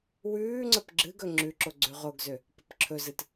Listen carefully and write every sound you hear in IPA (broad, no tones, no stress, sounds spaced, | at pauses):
w ʉː ŋ͡ǀ ə p ɡ͡ǁ ɨ ɡ ɵ ŋ͡ǁ ʉ ǁ o ɡ͡ǀ ʉ ʁ o ɡ z ø | p ə p ǁʰ ɵ z ɨ t